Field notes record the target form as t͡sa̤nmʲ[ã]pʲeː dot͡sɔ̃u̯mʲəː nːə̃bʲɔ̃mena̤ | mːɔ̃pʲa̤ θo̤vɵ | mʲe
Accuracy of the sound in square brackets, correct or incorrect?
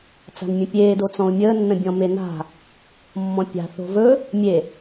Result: incorrect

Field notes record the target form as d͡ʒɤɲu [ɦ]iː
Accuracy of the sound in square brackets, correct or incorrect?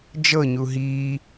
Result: correct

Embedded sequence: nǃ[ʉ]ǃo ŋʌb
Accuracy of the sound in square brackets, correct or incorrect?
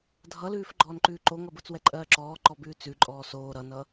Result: incorrect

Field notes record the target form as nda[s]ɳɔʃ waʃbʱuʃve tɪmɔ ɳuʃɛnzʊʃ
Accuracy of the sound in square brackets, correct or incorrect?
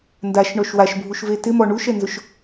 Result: incorrect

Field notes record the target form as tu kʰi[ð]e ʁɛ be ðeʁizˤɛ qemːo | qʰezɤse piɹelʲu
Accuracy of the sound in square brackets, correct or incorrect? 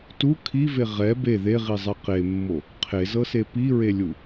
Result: incorrect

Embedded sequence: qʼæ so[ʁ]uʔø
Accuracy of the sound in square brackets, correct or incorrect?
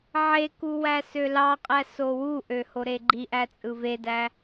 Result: incorrect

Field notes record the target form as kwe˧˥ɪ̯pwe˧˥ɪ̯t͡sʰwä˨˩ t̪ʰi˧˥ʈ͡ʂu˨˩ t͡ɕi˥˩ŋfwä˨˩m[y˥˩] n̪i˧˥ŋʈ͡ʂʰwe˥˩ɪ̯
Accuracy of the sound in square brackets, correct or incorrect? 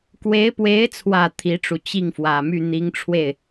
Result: correct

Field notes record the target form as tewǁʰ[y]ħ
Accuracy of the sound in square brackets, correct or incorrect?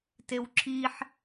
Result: incorrect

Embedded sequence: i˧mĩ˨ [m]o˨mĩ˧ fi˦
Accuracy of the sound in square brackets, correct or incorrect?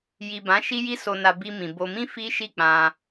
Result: incorrect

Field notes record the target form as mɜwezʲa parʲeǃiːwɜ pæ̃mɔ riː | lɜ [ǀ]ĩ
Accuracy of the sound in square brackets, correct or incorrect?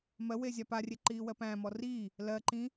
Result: incorrect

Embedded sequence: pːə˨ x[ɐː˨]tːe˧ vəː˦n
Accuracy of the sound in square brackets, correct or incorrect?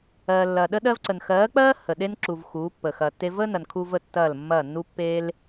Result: correct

